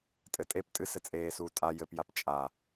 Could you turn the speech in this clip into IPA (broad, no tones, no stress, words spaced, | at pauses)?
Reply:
tʼɘtʼep tʼɨs ɘt͡sʼeːsuː tʼa jɘpjap t͡ʃʼa